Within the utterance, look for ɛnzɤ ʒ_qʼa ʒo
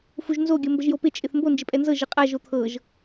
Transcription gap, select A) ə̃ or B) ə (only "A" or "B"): B